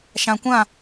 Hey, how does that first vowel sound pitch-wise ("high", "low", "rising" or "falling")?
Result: low